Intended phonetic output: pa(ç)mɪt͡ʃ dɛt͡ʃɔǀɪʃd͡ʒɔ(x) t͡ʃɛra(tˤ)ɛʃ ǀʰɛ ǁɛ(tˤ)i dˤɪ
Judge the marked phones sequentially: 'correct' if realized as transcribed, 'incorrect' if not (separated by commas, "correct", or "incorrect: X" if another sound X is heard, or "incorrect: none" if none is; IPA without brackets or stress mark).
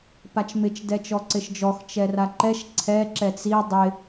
incorrect: t͡ʃ, correct, incorrect: ǃ, incorrect: t͡s